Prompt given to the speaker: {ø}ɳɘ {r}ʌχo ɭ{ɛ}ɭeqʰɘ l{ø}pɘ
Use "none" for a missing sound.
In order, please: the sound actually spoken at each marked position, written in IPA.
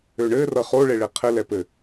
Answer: ø, r, e, ɛ

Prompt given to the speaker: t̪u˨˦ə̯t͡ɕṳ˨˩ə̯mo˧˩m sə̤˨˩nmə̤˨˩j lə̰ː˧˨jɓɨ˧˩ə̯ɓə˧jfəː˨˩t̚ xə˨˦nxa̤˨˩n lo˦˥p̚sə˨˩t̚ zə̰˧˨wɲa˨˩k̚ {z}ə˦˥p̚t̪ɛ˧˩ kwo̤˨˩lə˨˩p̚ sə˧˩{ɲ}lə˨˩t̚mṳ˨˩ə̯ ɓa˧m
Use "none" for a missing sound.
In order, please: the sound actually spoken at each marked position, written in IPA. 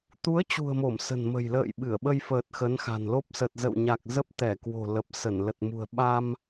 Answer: z, n

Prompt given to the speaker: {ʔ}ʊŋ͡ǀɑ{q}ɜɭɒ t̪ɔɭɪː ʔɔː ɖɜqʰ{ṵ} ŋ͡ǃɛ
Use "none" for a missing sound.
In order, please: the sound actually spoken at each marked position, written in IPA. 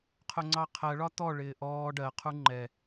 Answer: qʰ, qʰ, u

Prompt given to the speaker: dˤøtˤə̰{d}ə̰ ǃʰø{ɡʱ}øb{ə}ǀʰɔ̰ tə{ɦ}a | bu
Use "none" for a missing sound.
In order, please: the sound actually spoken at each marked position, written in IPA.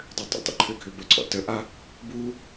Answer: tˤ, ɡʱ, ə, ʔ

